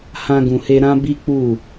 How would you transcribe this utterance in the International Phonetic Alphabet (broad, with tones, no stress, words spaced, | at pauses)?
hã˧ɡũ˨he˧ ɾã˦bi˦k͡pu˦˨